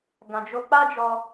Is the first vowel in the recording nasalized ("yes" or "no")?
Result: yes